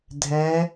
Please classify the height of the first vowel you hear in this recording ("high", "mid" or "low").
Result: mid